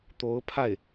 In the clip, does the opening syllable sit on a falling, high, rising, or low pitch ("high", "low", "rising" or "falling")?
rising